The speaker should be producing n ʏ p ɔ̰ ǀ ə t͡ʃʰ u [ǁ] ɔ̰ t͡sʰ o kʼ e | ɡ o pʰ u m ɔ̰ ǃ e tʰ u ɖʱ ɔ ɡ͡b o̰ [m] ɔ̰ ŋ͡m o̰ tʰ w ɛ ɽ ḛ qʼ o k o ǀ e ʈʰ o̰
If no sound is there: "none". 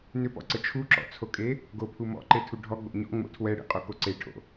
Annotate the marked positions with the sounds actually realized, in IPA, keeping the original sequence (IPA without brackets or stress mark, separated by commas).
ǁ, ɲ